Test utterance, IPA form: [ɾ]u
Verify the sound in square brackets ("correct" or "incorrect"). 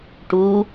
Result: incorrect